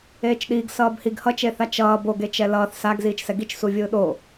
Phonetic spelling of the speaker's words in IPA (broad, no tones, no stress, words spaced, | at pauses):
eːt͡ʃɗiːɡ sʌːbhiɡ hʌt͡ʃeθa t͡ʃʌː boɡet͡ʃɛ lʌːθ saɡ ziːt͡ʃsɛɡit͡ʃ suvʲɯːɗo